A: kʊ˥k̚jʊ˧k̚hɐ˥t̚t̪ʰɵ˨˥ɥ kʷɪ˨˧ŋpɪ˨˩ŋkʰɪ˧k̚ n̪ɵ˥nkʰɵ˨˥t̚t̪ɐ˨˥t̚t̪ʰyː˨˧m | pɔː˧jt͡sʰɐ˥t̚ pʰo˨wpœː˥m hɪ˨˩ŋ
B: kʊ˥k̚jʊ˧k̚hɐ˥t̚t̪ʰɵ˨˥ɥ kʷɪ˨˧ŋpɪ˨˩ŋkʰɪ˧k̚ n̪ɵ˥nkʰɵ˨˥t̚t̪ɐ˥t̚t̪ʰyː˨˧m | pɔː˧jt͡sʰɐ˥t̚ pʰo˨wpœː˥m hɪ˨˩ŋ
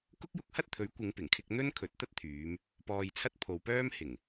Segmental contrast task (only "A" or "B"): B